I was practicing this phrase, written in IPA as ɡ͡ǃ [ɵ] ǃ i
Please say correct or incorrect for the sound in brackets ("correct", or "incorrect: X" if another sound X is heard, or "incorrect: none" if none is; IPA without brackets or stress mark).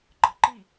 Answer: incorrect: ɤ